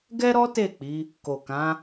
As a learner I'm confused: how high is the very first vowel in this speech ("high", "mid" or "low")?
mid